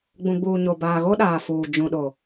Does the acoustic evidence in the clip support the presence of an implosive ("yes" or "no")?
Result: yes